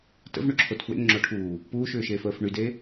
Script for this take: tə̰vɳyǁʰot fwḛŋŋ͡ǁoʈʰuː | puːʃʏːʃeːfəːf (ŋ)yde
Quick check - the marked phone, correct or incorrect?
incorrect